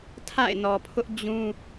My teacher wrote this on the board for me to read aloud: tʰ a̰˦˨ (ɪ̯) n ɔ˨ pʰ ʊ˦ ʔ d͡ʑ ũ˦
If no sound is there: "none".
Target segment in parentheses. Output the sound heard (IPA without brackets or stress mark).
ɪ̯